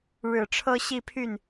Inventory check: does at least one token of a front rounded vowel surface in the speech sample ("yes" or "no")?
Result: yes